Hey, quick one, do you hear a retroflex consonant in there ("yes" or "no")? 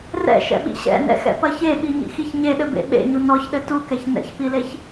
no